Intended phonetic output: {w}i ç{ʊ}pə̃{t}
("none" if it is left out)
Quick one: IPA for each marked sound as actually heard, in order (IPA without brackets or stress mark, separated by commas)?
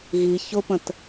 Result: ɣ, ʊ, t